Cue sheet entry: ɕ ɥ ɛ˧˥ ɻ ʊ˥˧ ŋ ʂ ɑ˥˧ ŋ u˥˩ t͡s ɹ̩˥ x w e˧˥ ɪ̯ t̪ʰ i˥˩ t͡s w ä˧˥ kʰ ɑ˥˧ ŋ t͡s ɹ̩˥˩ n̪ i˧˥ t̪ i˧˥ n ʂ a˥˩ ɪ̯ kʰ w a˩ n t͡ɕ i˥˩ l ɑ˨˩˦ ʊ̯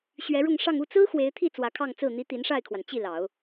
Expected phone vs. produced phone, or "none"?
none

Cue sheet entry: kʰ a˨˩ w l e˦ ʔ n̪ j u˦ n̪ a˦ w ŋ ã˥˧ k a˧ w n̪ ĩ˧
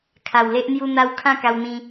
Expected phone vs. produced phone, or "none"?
ŋ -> kʰ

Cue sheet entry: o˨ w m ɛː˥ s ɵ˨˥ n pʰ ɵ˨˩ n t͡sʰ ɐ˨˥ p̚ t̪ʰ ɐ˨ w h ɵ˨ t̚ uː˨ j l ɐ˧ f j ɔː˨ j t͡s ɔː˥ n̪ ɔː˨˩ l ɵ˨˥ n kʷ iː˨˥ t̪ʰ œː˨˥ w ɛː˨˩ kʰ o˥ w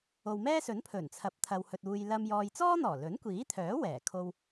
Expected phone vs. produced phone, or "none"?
f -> m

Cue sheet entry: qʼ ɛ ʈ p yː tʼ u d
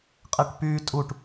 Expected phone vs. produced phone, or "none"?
d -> ʈ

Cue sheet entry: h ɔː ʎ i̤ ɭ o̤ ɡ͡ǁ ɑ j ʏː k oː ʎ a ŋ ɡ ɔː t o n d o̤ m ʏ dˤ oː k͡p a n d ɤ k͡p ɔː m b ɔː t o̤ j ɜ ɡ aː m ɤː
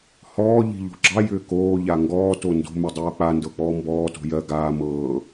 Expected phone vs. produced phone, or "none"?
ɭ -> ʎ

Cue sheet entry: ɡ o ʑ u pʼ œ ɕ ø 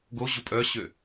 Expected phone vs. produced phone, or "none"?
none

